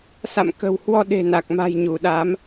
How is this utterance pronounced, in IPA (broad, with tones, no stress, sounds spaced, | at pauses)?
s a̰˧˨ m k ə̤˨˩ w h w ɔ˧ ɗ e̤˨˩ n a˨˩ k̚ m a̤˨˩ j ɲ u˧˩ ɗ a˨˦ m